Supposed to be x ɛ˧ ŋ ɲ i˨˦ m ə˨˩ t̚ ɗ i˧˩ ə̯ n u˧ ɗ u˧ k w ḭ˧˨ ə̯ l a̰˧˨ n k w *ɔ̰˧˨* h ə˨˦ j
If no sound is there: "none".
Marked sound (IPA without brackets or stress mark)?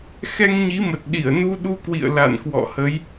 ɔ̰˧˨